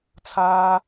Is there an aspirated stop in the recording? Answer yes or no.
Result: yes